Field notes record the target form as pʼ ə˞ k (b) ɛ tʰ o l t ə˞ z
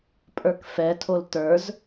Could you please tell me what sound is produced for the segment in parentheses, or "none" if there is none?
f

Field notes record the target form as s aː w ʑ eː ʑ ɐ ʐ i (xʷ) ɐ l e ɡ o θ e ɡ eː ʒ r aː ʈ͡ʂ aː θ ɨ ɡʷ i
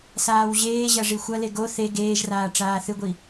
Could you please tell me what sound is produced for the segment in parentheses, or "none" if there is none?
xʷ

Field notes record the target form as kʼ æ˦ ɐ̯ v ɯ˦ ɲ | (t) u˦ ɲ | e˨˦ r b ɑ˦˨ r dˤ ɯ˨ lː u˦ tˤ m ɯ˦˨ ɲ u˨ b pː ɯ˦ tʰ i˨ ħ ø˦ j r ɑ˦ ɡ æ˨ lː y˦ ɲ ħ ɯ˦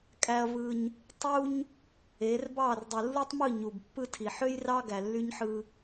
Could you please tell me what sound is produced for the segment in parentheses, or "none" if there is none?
tˤ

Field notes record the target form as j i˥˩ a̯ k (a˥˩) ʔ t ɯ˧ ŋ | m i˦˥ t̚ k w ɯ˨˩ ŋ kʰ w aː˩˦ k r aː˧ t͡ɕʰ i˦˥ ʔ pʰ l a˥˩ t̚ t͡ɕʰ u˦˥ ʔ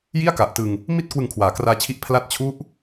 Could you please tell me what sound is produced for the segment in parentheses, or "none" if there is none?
a˨˩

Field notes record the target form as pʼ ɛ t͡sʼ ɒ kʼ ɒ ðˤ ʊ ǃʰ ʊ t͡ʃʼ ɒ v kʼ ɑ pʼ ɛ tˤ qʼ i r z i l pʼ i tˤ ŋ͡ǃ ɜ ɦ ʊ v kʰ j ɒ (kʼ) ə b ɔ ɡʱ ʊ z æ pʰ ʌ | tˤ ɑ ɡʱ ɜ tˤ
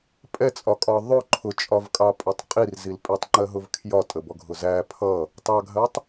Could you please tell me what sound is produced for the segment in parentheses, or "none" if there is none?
tʼ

